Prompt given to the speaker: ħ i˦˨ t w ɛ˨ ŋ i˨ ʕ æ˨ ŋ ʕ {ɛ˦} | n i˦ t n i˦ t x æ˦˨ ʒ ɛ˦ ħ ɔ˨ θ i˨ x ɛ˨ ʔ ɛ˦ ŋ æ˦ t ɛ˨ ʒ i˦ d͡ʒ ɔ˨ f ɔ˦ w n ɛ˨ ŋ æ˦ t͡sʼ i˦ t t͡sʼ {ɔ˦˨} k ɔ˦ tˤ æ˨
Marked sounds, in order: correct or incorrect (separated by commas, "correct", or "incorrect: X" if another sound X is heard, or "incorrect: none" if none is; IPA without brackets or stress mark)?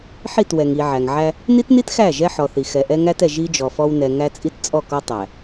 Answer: incorrect: æ˦, correct